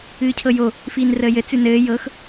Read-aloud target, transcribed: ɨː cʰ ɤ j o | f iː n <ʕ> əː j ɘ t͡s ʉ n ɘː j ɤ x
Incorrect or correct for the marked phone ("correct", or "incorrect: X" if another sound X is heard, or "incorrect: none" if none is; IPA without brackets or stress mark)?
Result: incorrect: r